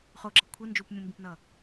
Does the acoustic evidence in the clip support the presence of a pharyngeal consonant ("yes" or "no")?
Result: no